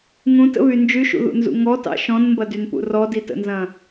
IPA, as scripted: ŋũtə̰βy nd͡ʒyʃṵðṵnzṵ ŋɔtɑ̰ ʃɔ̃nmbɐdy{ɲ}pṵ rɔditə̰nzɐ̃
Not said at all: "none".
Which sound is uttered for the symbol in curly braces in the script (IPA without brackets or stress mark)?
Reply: n